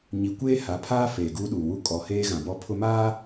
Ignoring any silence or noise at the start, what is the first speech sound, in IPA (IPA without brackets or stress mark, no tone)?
ɲ